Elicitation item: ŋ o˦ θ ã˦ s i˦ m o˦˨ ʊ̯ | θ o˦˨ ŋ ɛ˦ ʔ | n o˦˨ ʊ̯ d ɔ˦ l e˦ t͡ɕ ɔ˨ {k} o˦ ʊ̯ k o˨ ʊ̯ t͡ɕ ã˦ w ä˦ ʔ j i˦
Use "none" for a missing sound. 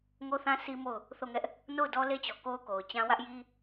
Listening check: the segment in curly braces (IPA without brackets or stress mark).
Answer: k